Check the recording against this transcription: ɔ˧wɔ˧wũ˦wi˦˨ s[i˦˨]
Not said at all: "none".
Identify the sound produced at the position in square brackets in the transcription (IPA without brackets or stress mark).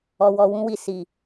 i˨